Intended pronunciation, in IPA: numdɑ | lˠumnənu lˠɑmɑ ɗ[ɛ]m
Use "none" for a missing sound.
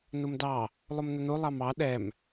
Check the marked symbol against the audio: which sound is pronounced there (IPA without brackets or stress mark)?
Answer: ɛ